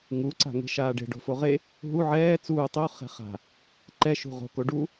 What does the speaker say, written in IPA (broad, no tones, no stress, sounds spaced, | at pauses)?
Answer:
ŋ u ǀ a̤ ŋ e̤ ʃ aː ɖ e̤ ɖ o̤ f o ʁ e | ɦ u ʕ ɛː t͡s uː tˤ o χ ɛ̤ χ a̤ | ǃ ɛ ʃ ṳ ʁ o̤ k o ɖ u